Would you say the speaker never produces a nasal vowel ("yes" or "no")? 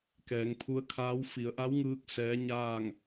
yes